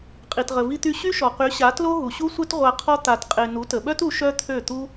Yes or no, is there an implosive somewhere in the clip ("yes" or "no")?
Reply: yes